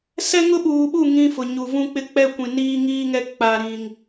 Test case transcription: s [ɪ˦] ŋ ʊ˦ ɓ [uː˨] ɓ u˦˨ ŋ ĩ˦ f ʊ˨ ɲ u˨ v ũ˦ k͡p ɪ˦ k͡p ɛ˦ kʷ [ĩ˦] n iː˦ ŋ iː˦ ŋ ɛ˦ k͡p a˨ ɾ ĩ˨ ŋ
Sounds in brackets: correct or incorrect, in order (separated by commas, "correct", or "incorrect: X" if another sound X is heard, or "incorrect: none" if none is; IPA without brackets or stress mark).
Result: incorrect: ɛ˦, correct, incorrect: ĩ˨